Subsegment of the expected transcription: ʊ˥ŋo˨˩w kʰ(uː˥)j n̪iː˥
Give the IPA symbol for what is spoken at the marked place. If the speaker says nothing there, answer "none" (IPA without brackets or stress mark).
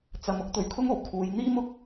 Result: uː˨˧